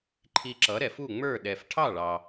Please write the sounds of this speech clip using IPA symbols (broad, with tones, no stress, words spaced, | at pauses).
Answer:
ǃʰi˧ǁʌ˩˥ɾɛ˩fu˥˩ ŋ͡mə˞˥˩ ɗɛ˩f ʈʰɑ˥˩ɭɑ˩